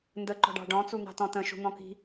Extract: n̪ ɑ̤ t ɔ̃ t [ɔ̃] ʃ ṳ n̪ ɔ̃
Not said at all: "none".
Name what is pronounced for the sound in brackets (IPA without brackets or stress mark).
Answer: ə̃